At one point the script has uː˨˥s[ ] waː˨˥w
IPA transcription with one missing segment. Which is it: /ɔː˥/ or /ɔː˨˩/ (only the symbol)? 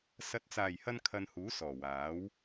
ɔː˨˩